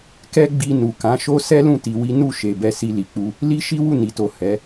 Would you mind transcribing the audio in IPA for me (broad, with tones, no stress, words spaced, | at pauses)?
kɛ˦ɡ͡bi˧ nu˨kã˨˦ʃo˦ sɛ˦lũ˦˨ ti˧wi˦ nu˦˨ ʃe˨bɛ˧ si˧li˨k͡pu˧ | li˦ʃi˦ wu˦˨ni˨to˨ hɛ˨˦